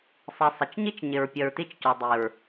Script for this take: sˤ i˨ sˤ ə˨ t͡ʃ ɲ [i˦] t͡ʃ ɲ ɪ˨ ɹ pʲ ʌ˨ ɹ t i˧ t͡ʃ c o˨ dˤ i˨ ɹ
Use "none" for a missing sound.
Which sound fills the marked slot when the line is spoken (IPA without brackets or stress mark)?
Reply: i˦